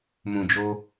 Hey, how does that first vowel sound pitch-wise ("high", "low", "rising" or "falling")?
low